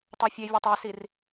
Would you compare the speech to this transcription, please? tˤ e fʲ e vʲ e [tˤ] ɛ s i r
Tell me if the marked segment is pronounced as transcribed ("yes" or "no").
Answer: yes